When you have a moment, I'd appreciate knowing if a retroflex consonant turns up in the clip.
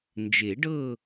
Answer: yes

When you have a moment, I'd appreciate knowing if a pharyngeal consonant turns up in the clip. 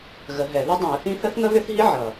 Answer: yes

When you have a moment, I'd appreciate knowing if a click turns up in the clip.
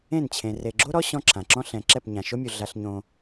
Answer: yes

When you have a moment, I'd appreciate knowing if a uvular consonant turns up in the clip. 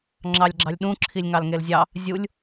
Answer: no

